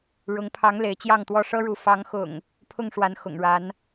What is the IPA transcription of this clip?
ɻʊ˨˦ŋpʰɑ˨˦ŋ le˨˦ɪ̯t͡ɕjɑ˥˨ŋt̪wɔ˥˨ ʂɤ˦ɻu˨˦ fɑ˨˦ŋxʊ̰˨˩ŋ | pʰʊ˥˨ŋʂwa˨˦n xʊ̰˨˩ŋɻa˨˦n

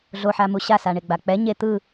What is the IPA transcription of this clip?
ɮoħamu ɕasaɳeɡ͡ba k͡pɛ ɲe t̪ɯ

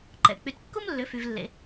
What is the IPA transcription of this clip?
ǃɛ̰˩ k͡py˩tkːu˥mlːʏ˩˧ fy˩vlːḛ˩

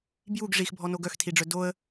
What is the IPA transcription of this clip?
bjuɡ ʐixbʱɔno ɡœxtʰiɖ͡ʐœ doə̯

